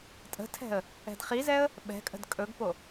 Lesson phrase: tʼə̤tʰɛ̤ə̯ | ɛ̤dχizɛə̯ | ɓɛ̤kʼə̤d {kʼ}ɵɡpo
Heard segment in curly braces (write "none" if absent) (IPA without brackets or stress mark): kʼ